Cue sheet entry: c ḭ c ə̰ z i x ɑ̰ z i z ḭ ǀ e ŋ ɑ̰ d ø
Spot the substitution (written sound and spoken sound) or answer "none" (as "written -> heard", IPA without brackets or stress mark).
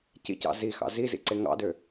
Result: ə̰ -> ɑ̰